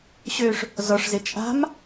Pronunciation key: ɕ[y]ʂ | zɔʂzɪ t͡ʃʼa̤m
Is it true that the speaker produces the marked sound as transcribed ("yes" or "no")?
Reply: no